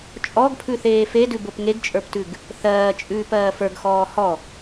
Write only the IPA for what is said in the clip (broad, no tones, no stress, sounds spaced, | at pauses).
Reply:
t͡ʃʼ ɔ ɡ pʰ ʉ θ eː f e d ʉ b o p ŋ e ɡ t͡ʃʼ ə˞ p t ʉ ɡ | θ ɜː t͡ʃʼ ʉː p ɜː f ə˞ ɡ x ɔː h ɔ